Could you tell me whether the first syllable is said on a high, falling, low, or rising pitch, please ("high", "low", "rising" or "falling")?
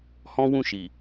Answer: high